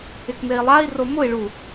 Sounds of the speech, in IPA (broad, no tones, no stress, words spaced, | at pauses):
ɪkmei̯lˠai̯ro mʊi̯ɭu